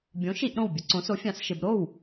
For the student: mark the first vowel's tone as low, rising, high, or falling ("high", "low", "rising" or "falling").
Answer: rising